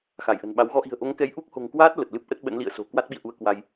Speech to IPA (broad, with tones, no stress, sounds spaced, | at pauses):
x a˧˩ j ʔ ə̤˨˩ n ɓ a˨˦ w ɣ ɔ˧ ʔ i̤˨˩ ə̯ ʔ o˨˦ ŋ k ɛ˨˦ j ʔ u˦˥ k̚ h o̤˨˩ ŋ k w aː˦˥ t̚ l ə˨˩ t̚ l ɨ˦˥ p̚ ʔ ə˦˥ t̚ ɓ ə̰˧˥ n l ḭ˧˨ ə̯ s o̤˨˩ k w a˦˥ t̚ ɓ ḭ˧˨ ə̯ ʔ u˧ ə̯ k w a˧ j